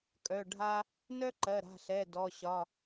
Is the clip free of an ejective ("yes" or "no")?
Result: no